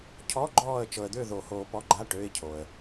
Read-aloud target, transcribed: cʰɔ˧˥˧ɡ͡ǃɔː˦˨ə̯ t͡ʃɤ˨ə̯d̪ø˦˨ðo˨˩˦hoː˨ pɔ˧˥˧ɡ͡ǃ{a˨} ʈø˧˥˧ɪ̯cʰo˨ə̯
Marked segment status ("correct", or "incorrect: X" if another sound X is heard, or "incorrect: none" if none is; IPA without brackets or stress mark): incorrect: a˧˥˧